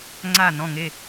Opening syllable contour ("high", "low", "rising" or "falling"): falling